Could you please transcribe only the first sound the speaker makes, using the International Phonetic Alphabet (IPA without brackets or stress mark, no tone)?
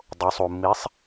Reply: dˤ